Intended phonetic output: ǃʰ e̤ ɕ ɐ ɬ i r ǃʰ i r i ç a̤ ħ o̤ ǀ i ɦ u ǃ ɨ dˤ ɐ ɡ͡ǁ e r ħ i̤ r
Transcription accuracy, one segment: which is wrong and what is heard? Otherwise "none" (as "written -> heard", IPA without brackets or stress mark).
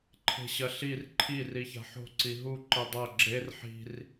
none